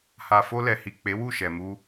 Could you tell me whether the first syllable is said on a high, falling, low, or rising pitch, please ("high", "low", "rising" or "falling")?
low